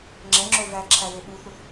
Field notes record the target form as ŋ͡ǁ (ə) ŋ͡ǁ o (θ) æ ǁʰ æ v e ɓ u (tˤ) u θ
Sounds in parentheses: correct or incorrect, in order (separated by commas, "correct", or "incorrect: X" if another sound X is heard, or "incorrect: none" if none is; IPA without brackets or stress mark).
incorrect: ɛ, incorrect: v, incorrect: θ